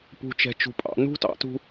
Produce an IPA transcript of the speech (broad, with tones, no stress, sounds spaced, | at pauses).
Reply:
p ṳ˨ t͡ʃ ɛ̤˨ t͡ʃ ṳ˨ pʼ ɑ̰˦˨ n ṳ˦ t ɑ̰˨˦ t ṳ˧